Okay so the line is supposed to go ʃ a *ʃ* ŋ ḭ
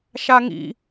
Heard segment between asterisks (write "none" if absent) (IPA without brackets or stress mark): none